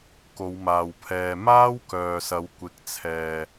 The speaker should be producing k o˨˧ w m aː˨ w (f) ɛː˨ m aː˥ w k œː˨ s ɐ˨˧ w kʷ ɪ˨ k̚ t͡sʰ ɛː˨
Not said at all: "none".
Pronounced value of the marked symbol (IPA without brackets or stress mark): pʰ